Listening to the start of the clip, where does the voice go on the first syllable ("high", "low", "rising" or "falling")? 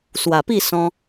low